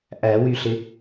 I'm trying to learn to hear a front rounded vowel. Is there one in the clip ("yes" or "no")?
yes